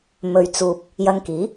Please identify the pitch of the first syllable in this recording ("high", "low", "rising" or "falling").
low